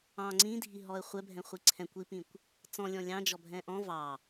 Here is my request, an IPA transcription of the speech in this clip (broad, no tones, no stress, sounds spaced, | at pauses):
ɑ̃ ŋ͡ǀ ĩ dʱ i ɦ ɔ ə̯ χʷ ɛ bʱ ɛ̃ χʷ i ǀʰ ɛ̃ kʷ i p ĩ kʷ | t͡s ɔ̃ lʲ ɔ̃ lʲ ɑ̃ d͡ʒ ɔ bʱ ɛ̃ ʔ ɔ̃ v ɑ